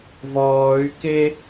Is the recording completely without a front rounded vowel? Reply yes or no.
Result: no